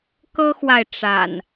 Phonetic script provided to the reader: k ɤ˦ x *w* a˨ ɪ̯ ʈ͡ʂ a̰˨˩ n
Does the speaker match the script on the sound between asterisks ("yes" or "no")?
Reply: yes